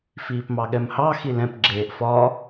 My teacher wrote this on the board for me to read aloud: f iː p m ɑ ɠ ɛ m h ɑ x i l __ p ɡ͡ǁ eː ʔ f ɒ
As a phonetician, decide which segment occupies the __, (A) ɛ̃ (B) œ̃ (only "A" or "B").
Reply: A